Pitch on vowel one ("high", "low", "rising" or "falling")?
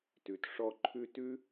low